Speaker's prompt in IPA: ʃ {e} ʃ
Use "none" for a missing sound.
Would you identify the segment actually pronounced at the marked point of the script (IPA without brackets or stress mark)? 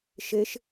e